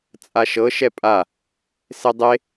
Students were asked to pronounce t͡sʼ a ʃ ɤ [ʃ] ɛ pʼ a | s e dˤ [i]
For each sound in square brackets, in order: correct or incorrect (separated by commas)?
correct, incorrect